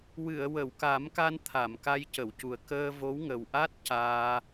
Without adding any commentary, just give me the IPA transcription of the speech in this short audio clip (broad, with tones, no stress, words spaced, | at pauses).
wɨ˨˩˨ə̯wə˨˩˨wka˨˩˦mka˧n t̪ʰa˨˩˨m ka˧jcə˨˩˨wcu˨˩ə̯ kəː˧ vo˧˥wŋə˨˩w ʔa˦˥t̚ caː˧